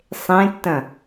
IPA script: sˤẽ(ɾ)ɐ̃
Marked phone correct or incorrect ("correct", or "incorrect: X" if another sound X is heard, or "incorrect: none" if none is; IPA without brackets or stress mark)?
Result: incorrect: tː